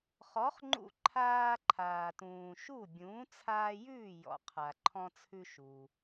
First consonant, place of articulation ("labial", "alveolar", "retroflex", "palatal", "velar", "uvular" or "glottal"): uvular